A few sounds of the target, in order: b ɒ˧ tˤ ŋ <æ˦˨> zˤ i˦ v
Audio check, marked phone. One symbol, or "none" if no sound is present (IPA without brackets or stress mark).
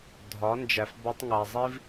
æ˨